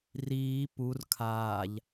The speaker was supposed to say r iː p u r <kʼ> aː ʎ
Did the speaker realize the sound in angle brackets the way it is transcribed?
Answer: no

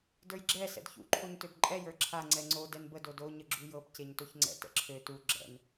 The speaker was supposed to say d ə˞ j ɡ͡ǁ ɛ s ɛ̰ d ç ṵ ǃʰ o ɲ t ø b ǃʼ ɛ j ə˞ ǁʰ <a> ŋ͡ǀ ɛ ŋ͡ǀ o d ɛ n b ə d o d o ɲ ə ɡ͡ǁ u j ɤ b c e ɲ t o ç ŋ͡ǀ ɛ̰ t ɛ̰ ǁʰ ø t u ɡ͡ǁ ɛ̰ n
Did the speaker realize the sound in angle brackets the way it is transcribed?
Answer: yes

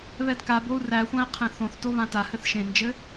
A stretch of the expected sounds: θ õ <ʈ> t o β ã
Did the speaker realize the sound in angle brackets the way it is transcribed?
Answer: no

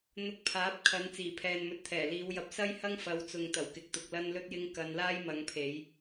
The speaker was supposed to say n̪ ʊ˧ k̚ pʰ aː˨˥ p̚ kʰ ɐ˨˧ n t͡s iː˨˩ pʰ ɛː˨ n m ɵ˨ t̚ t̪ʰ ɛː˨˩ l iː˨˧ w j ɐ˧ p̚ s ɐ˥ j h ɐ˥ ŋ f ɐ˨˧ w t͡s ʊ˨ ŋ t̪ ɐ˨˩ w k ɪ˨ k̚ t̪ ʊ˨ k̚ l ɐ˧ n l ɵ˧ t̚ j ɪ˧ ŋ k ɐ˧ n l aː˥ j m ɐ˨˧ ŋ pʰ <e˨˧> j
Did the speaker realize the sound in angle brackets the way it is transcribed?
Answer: yes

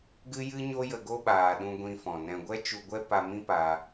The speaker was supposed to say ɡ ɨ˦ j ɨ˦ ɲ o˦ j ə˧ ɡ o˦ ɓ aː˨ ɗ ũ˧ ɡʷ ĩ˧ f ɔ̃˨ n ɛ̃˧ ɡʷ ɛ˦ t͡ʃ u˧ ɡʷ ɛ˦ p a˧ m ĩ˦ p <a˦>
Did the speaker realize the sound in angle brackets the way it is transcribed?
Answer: no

